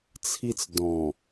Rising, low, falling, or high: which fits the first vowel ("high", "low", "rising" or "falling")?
high